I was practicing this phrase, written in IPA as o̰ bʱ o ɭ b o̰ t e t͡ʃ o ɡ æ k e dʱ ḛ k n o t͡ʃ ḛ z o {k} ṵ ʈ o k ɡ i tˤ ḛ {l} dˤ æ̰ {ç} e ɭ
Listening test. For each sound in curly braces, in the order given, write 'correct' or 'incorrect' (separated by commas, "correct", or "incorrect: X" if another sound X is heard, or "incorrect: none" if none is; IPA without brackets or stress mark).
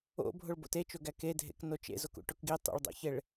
correct, incorrect: ɭ, correct